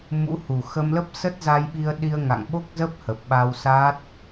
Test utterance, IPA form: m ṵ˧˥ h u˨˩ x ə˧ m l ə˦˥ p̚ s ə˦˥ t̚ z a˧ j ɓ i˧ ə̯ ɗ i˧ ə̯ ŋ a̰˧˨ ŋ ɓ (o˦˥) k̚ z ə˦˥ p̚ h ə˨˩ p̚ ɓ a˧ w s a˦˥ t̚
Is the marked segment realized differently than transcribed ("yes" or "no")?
no